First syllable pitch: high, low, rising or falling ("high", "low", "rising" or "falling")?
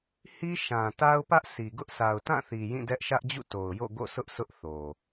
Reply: high